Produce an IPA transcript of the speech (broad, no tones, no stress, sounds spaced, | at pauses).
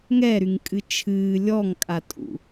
ŋ ɛ ɾ y ŋ kʼ ɨ t͡ʃʰ ɨː lʲ ɔ ŋ kʼ a tʼ ṵ